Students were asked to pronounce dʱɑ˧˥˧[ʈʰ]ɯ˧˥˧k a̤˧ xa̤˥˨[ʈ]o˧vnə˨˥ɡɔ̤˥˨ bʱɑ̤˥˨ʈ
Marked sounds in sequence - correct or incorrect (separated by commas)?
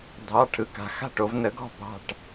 correct, correct